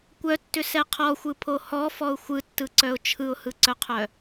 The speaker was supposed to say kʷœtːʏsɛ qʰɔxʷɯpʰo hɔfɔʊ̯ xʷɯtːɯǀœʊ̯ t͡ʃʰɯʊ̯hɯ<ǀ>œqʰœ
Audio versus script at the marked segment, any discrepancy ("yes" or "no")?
no